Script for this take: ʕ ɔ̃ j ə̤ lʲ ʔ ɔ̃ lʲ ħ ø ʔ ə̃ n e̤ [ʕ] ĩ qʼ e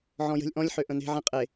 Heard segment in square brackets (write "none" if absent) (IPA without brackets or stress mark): ʕ